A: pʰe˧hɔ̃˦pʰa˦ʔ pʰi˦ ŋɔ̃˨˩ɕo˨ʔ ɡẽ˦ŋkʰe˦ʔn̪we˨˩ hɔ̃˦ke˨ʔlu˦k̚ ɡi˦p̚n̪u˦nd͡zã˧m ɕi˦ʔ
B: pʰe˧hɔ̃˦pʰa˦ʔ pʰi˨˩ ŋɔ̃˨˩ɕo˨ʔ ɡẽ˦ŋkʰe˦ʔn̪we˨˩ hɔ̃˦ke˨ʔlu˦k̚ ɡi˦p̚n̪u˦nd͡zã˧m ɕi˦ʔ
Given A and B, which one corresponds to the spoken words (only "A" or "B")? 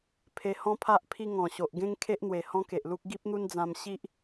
A